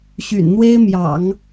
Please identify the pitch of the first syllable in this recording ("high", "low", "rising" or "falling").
low